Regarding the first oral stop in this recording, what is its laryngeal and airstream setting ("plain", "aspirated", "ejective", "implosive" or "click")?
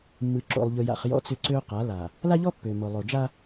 click